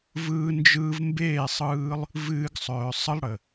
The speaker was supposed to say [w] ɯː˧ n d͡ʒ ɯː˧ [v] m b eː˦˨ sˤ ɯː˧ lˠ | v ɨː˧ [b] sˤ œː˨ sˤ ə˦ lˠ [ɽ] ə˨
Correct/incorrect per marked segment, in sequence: incorrect, correct, incorrect, correct

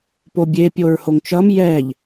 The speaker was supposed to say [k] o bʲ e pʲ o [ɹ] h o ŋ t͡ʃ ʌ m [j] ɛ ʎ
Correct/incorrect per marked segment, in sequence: incorrect, correct, correct

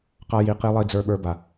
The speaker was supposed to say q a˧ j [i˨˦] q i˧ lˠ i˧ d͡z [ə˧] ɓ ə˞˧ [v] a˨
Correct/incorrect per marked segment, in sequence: correct, incorrect, incorrect

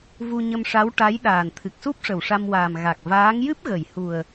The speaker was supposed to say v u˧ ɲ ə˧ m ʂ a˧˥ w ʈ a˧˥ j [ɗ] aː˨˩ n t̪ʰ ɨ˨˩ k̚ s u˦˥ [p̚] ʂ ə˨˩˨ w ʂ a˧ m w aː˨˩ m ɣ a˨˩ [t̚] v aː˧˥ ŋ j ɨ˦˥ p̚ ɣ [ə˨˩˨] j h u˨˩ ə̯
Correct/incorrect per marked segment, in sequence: correct, correct, incorrect, correct

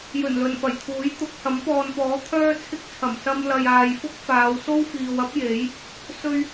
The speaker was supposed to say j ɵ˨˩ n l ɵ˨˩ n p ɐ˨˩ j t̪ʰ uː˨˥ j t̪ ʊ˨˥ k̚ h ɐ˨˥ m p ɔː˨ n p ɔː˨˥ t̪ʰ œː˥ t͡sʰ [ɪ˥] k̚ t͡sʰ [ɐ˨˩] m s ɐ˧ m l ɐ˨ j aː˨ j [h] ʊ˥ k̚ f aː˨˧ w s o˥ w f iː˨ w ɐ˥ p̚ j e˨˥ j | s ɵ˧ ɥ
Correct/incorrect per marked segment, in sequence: correct, correct, incorrect

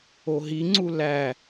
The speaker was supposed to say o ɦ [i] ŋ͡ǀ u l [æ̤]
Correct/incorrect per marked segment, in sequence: correct, incorrect

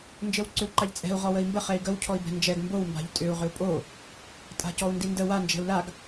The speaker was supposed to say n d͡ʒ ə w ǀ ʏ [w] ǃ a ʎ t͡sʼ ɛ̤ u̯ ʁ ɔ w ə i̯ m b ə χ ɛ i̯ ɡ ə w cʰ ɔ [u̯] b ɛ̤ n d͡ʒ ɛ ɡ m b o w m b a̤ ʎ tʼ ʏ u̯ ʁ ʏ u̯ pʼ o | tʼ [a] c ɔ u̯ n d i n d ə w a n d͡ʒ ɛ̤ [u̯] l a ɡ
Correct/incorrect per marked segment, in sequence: correct, incorrect, incorrect, correct

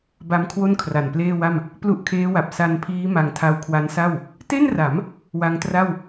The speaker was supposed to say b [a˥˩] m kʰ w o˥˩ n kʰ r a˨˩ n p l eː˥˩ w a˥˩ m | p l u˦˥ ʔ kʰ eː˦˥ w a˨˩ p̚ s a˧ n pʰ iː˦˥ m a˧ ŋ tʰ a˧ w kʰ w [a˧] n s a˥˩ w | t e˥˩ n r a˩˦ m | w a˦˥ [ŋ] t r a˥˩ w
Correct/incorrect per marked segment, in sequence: incorrect, incorrect, correct

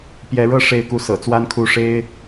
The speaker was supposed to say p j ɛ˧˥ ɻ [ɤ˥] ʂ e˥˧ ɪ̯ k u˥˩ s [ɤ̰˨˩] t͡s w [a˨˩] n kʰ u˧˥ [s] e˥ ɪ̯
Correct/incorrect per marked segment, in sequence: correct, correct, incorrect, incorrect

